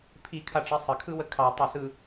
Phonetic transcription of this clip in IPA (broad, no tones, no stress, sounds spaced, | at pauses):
pʰ i kʰ a ʈ͡ʂ ɛ sˤ ə kʰ ɯ w ə kʰ ɑ tˤ u s ɯ